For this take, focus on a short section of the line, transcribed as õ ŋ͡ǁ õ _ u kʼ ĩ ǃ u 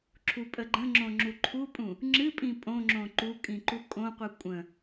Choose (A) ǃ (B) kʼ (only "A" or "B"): A